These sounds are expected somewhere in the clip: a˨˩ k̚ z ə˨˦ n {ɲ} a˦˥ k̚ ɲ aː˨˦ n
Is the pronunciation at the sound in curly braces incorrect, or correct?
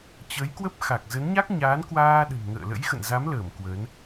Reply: correct